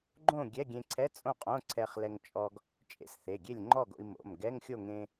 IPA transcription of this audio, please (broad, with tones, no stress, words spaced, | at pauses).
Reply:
ɡ͡ǃõ˥˨ ɡʲɛ˧˥˧ɡʲẽ˧ǀʰɛ˧˥˧ t͡sʼõ˥˨qʼõ˧˥˧ǀʰɛ˧χ lɛ˧ŋt͡ʃʼɔ˧ɡ | t͡ʃʼḛ˧sθe˩˧˩ɡʲe˥˨lʲŋ͡ǃɔ˥˨ ɡo̰˧i̯mo̰˩˧˩mɡɛ˧˥˧ŋxʲo˥˨ ŋẽ˧